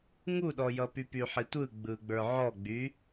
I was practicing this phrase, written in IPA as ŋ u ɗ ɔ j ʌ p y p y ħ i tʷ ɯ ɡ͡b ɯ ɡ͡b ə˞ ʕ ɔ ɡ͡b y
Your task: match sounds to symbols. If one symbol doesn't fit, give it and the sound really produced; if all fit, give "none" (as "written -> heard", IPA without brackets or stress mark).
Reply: none